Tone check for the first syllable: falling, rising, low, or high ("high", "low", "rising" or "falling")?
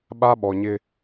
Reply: high